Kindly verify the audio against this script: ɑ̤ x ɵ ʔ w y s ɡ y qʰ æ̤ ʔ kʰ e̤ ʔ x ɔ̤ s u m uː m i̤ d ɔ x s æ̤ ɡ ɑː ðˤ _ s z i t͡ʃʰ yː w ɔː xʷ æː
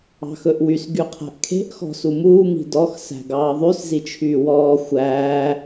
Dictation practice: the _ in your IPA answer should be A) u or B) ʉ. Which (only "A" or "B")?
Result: B